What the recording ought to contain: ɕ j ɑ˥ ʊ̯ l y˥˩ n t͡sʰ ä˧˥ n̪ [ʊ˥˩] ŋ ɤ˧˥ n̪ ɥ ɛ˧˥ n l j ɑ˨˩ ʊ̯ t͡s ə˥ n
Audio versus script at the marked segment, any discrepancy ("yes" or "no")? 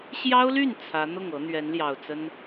no